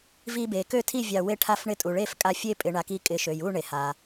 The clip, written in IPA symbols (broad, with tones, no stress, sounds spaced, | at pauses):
v i˦ b e˩˧ k ø˥˩ tʰ i˥˩ vʲ ɑ˧˩ w e˦ ʈʰ a˥˩ f ɳ ɪ˥˩ tʼ u˩ ɭ e˥˩ f kʼ a˧˩ fʲ e˦ pʼ ɪ˩˧ ɳ a˩˧ k i˧˩ kʼ ɪ˩˧ ʃ ø˩ j u˥˩ ɳ e˩ h a˩